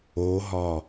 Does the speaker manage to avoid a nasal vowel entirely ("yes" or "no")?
yes